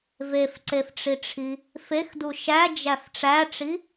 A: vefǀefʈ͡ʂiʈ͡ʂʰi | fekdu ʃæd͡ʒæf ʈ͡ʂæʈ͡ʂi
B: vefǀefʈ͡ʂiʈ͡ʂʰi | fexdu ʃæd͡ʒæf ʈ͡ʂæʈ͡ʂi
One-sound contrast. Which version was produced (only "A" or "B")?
B